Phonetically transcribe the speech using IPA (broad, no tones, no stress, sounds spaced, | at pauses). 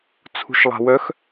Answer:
t͡sʰ ṳ ʃ lˠ a̤ w œ x